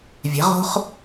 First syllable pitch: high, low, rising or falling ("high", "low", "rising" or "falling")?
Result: rising